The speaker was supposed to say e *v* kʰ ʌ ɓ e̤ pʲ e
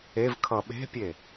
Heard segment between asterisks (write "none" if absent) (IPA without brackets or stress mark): v